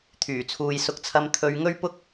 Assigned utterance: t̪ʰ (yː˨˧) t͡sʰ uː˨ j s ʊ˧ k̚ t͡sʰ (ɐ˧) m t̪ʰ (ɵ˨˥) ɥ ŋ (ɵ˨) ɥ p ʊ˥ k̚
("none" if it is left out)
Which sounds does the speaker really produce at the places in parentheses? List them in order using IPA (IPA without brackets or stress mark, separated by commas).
yː˨˩, ɐ˧, ɵ˧, ɵ˥